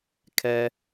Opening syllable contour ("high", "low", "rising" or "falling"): low